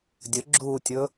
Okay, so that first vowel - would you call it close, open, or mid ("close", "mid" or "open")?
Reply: mid